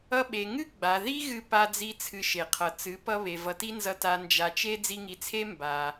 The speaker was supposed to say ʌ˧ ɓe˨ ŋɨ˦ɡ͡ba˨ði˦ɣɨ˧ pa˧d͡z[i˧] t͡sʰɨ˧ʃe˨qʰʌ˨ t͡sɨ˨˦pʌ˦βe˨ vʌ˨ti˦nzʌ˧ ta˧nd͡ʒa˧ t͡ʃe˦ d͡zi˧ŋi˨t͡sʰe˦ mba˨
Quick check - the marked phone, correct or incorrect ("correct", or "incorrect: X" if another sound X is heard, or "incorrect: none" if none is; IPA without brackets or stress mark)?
correct